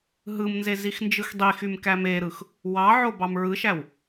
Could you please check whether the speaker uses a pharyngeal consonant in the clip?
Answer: yes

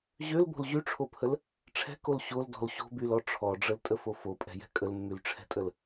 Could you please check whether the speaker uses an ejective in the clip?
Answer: yes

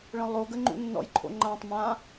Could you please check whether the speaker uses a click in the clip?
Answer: yes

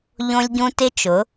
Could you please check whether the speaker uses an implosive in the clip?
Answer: no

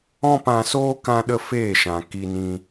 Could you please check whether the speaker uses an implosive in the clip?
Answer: yes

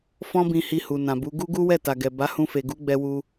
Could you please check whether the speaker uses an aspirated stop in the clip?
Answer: no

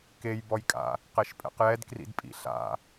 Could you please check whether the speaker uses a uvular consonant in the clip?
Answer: yes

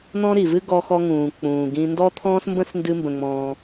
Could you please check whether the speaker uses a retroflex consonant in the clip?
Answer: no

